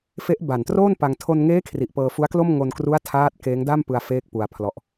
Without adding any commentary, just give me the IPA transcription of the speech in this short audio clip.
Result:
f e˦˥ ʔ b a˨˩ n t r oː˥˩ n p a˧ ŋ tʰ o˧ n ŋ eː˦˥ kʰ r i˨˩ ʔ p ɤː˧ f u˦˥ a̯ k l o˥˩ m ŋ o˧ n k r u˦˥ a̯ tʰ aː˦˥ t̚ k eː˦˥ ŋ d a˥˩ m p ɯ˧ a̯ f eː˥˩ k̚ p u˧ a̯ pʰ l ɔ˦˥ ʔ

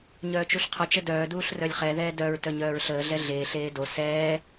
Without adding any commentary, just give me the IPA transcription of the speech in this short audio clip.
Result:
ɲ œː t͡ʃ u ɬ qʰ ɔ t͡ʃ ə d œː d uː ɬ r œ lʲ χ ɛ ð ɛː d œ ɹ t œ ɲ œː ɹ ɬ əː ɮ ɛ ɮ eː ɬ eː d o s ɛː

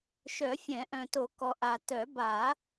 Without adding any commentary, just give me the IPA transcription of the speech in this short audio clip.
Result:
ʃ œ˨˩˦ fʲ ɛ̃˨˩˦ ʔ œ̃˨ t o˨˩˦ k ɔ˨ ʔ a˨ t œ˨˩˦ b a˨˩˦

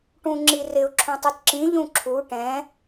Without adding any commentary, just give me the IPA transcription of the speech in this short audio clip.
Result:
ʈ ũ ŋ͡ǁ i r ɪ ʊ̯ ǁʰ ũ tˤ u t ǁ ĩ ʎ ũ ǁʰ u ʈ ɛ̃

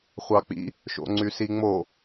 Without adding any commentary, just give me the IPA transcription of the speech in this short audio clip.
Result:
χʷ ɑ k͡p ḭ | ʃ o̰ ŋ͡ǀ y s i ŋ͡m o

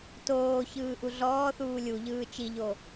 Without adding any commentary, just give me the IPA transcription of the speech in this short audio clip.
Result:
t oː ç ɯː ʔ u ɮ ɔː θ uː lʲ u ʎ ɯː t͡ʃ i ʎ o

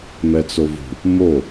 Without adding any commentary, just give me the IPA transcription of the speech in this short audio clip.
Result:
m ɛ t͡s o v ṳ | m o

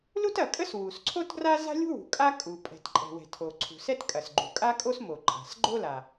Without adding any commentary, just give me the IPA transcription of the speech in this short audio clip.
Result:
l u˥ t ɐ˩ kʼ ə˥ s w u˩ s ǀʰ o˥ t ɡ r a˥ z a̤˥ lʲ ṳ˥ w ṳ˩ kʼ a˥ kʼ u˩ pʼ ɛ̤˩ t ǃʼ ɛ̤˩ w ɛ̤˩ tʰ o˩ ǀʰ ṳ˩ s ɛ˥ t kʼ ɐ˩ s ɡ͡ǃ ṳ˩ kʼ a˥ kʼ o˥ s m o˩ ǃʼ a̤˩ s ɡ͡ǃ o˥ l a˩

